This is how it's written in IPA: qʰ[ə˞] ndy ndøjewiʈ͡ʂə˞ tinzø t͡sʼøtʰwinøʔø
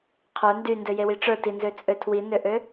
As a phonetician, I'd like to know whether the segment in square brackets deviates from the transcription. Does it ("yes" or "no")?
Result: no